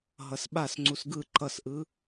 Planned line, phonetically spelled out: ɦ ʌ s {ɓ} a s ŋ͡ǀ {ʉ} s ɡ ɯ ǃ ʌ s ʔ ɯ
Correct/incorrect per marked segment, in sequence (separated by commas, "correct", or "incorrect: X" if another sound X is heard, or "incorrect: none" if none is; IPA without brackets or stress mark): correct, incorrect: u